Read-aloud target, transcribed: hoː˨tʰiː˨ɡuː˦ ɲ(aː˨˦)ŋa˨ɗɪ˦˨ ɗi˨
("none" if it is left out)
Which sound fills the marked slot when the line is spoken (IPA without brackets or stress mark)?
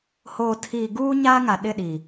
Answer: aː˦